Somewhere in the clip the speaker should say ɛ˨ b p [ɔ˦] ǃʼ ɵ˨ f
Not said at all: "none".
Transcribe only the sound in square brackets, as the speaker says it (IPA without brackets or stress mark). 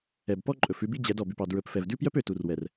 ɔ˦